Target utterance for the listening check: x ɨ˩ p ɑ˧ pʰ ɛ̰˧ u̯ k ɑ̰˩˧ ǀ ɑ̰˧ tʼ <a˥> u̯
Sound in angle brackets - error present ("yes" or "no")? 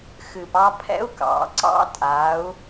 yes